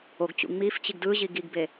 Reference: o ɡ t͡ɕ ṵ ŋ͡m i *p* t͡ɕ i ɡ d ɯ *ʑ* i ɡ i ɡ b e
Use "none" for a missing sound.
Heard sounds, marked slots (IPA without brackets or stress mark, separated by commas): f, ʑ